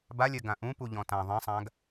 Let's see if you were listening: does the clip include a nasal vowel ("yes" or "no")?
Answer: yes